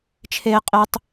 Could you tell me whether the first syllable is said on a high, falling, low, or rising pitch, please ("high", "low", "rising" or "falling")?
high